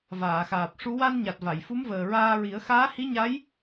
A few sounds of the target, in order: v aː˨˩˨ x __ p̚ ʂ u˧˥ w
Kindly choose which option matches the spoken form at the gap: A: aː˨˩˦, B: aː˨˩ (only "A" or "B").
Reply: B